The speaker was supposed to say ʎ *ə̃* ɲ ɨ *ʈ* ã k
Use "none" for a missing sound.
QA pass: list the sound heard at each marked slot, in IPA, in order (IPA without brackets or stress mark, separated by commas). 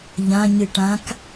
ã, ʈ